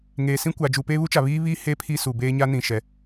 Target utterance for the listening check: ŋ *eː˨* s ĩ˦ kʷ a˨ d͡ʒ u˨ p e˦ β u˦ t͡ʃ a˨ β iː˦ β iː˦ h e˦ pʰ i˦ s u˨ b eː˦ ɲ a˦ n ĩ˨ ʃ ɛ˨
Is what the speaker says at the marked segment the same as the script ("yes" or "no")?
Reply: yes